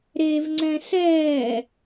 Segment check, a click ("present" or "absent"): present